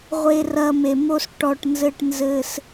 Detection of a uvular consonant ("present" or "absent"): present